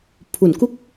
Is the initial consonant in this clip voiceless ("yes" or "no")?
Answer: yes